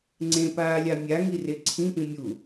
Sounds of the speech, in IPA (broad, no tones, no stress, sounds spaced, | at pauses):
ŋ͡ǀ ẽ p aː lʲ a mʲ a ŋ i r e ǀʰ ĩ p ĩ mʲ u